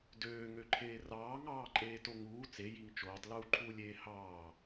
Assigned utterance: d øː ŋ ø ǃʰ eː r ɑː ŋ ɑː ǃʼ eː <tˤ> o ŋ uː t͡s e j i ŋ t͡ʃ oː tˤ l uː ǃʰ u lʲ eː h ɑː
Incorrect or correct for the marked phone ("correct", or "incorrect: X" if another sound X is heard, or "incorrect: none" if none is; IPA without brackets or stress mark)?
incorrect: t